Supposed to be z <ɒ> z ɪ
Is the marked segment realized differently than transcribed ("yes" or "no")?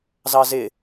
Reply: yes